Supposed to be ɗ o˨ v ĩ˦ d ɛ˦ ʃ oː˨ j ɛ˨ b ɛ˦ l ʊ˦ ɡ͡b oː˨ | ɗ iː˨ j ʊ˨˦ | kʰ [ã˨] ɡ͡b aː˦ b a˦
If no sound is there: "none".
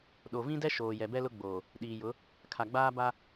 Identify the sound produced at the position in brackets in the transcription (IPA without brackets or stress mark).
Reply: a˨